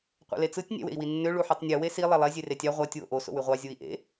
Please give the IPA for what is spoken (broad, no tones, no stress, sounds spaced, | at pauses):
qʷ ḛ l e t͡s ɯ tʲ nʲ æ̰ w ḛ i̯ w i nː ø ɭ u ħ i tˤ nʲ ɯ w e s i lˠ e lˠ e zʲ e r e tʲ ɑ ʁʷ æ tʲ w o̰ ʔ o s o̰ w y ʁʷ ɑ zʲ u i̯ ʔ ḛ